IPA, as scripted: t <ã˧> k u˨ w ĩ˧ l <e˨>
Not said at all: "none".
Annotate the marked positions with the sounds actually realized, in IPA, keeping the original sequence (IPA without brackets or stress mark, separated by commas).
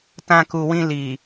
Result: ã˧, i˨